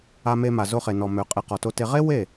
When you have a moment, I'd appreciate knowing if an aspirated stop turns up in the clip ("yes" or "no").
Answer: no